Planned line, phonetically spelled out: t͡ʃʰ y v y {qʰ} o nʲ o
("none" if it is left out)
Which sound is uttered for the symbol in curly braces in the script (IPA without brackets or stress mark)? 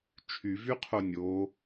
qʰ